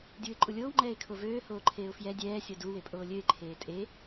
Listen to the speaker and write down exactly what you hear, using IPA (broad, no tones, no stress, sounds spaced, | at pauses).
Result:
dʲ uː ɪ̯ ǃʼ u lʲ oː w ŋ͡ǃ ɛː ɪ̯ kʰ o v øː h oː ǃʰ eː ʊ̯ f j ɛ dʲ ɛː sʲ o d u w e pʼ oː lʲ ø ɪ̯ ǃʰ eː tʼ e